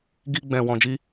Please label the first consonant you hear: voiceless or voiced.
voiced